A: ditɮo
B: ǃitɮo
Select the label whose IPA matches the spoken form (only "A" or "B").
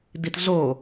A